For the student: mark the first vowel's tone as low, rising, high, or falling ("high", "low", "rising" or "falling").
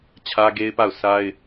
high